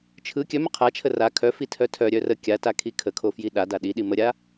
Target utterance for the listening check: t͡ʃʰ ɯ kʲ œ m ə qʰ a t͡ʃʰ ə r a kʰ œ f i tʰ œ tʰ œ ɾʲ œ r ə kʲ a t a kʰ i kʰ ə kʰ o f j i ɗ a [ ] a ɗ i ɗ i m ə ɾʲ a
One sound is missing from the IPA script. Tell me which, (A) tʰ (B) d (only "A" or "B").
B